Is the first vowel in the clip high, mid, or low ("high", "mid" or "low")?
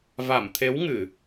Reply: low